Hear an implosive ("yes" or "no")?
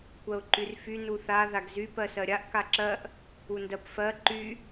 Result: no